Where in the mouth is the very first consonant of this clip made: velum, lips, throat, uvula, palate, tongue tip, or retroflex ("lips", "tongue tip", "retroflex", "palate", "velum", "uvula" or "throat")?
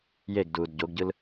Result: palate